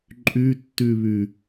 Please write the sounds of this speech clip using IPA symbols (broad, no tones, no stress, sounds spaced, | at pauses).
ǃʼ y tː y β y